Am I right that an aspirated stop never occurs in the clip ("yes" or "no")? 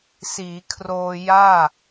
no